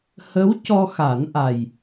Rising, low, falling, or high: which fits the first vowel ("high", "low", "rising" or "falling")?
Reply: rising